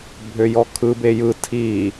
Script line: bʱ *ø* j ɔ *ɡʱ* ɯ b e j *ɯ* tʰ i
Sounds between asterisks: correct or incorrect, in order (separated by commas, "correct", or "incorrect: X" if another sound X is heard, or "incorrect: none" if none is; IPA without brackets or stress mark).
correct, incorrect: kʰ, correct